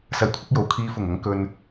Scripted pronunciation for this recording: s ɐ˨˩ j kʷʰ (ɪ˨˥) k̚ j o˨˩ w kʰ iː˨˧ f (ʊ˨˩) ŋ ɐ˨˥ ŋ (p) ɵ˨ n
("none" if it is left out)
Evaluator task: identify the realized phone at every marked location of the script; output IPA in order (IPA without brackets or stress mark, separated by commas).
ɪ˧, ʊ˨˩, k